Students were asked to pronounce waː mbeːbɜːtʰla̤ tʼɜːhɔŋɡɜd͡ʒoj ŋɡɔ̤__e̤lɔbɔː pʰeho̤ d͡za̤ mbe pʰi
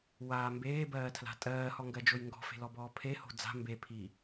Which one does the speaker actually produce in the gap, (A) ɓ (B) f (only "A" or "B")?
B